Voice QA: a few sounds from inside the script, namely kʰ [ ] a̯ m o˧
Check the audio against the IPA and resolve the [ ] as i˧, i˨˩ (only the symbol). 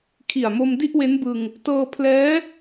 i˨˩